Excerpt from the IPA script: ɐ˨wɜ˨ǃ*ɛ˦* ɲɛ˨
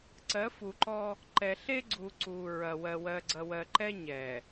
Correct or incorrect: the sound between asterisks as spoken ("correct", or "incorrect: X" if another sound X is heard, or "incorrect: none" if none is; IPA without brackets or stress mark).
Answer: correct